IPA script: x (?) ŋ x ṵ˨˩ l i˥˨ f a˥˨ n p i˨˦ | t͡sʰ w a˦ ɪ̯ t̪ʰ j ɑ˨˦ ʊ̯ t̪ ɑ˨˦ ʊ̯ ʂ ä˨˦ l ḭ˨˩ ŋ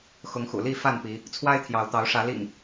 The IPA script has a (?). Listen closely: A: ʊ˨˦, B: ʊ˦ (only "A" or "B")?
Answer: A